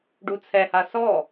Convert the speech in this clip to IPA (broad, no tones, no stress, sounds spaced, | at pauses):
ɖ u t͡sʰ ɛ h a s ɔ